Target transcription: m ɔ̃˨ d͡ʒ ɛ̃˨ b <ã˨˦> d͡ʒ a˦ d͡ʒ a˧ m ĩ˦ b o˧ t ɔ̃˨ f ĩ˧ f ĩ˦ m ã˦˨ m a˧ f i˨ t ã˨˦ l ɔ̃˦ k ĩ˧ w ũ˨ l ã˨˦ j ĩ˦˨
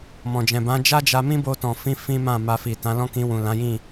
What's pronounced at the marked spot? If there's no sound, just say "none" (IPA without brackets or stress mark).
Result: ã˨˦